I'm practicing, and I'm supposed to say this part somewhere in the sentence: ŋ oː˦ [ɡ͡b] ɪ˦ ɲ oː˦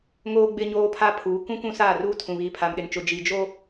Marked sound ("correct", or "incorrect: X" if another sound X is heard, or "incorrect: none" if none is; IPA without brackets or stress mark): correct